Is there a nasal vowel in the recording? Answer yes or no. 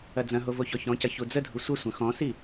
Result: yes